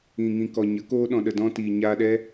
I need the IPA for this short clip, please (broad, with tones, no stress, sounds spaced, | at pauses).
ĩ˨ ŋ ĩ˨ k ɔ˨ ɲ ə˨˦ k oː˧ ɗ ɔ̃˨ ɗ ə˨ d ɔ̃˧ t iː˨ ɲ aː˧ ɗ ɛ˦